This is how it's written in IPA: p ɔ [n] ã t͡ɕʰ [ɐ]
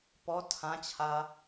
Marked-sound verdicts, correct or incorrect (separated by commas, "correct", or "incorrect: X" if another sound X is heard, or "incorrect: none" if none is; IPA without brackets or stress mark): incorrect: tʰ, incorrect: a